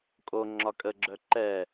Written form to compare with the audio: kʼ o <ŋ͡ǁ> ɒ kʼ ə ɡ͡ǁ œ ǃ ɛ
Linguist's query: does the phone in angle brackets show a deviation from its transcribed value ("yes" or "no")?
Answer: no